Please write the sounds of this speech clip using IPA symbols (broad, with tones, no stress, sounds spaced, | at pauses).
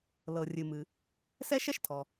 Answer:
l ɤ˩ rʲ ɨ˩ m ɨ˩ | s ɛ˥ ʃ ɛ˥ ʃ tʰ ɔ˩